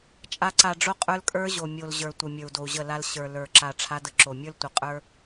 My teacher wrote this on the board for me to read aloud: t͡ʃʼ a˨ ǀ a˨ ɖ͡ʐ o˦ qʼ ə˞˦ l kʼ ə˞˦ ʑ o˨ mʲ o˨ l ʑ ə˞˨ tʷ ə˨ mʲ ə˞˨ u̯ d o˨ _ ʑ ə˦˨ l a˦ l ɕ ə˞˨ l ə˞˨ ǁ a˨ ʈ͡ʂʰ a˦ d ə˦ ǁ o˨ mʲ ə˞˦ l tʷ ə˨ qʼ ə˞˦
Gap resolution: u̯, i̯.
u̯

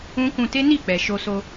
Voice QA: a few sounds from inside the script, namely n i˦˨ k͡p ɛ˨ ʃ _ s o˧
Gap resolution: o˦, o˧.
o˧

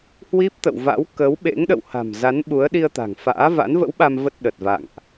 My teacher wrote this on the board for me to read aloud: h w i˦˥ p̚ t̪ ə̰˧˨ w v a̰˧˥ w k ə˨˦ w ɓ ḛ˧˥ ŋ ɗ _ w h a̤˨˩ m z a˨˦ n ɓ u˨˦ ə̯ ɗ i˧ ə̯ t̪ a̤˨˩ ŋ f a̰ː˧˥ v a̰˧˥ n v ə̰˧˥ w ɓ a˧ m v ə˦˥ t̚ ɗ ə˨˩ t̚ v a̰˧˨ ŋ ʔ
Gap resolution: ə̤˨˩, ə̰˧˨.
ə̰˧˨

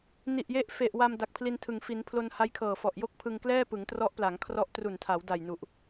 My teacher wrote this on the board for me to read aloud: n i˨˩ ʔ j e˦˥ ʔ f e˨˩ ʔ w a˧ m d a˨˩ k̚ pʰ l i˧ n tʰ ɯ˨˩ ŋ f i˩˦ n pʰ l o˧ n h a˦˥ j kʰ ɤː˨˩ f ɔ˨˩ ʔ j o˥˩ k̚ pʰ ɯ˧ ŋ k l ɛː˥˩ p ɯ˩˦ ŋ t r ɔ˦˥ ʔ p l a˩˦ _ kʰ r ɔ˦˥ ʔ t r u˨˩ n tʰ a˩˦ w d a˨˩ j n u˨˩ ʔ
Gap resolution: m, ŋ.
ŋ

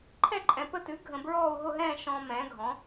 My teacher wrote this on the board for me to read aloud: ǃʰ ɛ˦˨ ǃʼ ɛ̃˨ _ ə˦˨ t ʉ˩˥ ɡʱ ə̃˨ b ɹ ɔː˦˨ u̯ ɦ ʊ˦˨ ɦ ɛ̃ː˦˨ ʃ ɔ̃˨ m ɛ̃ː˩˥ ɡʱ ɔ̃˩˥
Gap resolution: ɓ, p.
p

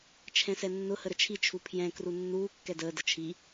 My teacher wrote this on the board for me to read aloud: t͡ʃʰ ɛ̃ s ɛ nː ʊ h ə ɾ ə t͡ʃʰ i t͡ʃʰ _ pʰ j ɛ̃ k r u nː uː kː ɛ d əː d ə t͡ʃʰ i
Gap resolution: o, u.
u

